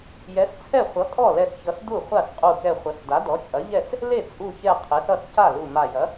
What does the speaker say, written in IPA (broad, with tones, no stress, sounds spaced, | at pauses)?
j ɛ˩˥ s t͡sʰ ɛ˥˩ χʷ ʌ˩˥ kʼ ɔ˥˩ l ɛ˧˩ s ç ʌ˩˥ s d u˥˩ χʷ a˥˩ s qʼ u˧˩ k ɛ˧˩ χʷ ɐ˩˥ s d a˩˥ d ɔ˩˥ t͡ʃʼ ɐ˩˥ ʎ ɛ˥˩ s | l e˥˩ t͡sʼ u˧˩ ç ɛ˧˩ qʰ e˩˥ s ʌ˥˩ s c a˥˩ l u˧˩ m a˧˩ j ɐ˩˥